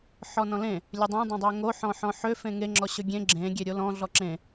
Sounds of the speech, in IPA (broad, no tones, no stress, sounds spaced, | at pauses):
ħ ɔ n ɔ̃ l ẽ | lʲ ɵ dˤ ẽ dˤ ẽ dˤ ø ŋ o ħ ɔ̃ ħ ɔ̃ ħ ø f ẽ ŋ e ŋ͡ǁ ɔ ɕ ɵ ɡʲ ẽ ɡ͡ǁ ẽ ɡʲ e ɾʲ o l ɔ̃ ɮ ɔ ǁ ẽ